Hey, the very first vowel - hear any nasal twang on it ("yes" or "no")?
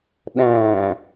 yes